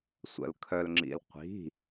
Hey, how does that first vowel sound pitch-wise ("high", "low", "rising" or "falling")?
low